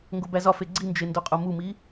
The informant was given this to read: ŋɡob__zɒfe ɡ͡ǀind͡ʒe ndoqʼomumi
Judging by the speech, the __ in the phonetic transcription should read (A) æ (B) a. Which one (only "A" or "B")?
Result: A